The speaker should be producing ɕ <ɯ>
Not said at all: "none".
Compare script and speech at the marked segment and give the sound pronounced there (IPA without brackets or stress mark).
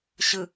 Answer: ɯ